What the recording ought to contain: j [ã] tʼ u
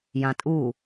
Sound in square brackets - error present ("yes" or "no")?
no